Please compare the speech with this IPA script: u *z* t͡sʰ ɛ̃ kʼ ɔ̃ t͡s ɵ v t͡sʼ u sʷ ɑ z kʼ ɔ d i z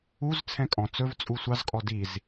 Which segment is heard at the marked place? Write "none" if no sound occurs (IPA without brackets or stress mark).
z